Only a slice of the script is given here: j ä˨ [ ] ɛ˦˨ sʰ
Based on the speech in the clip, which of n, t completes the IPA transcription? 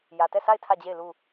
t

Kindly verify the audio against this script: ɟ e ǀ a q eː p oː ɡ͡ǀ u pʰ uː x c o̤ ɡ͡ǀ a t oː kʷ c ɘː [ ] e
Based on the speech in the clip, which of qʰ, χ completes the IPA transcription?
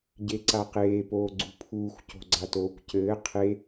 qʰ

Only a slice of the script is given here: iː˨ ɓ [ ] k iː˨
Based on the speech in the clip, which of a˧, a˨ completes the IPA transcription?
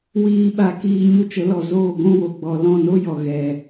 a˨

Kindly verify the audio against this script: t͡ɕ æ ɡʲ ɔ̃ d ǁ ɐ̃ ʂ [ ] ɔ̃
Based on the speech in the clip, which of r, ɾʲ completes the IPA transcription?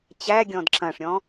ɾʲ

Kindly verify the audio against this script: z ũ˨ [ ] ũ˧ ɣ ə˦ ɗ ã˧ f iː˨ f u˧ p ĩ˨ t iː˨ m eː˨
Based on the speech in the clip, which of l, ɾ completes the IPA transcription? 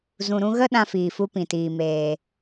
ɾ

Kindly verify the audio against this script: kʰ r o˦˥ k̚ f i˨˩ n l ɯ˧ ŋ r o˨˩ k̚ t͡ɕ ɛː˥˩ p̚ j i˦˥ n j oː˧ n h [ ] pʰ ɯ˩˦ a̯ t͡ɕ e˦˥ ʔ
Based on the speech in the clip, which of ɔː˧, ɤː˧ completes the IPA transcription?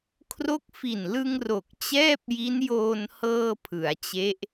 ɤː˧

